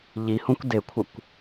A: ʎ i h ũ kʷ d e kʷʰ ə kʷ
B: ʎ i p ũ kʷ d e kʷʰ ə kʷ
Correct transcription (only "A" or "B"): A